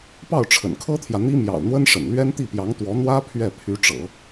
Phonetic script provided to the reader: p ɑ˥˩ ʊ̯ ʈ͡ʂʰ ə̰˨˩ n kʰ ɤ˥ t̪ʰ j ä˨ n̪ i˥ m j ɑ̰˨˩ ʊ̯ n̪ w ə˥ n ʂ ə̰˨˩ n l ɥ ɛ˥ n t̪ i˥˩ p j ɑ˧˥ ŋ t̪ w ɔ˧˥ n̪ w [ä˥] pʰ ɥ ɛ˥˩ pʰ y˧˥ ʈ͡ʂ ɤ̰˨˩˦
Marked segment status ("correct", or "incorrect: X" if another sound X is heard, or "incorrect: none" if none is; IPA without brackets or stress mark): correct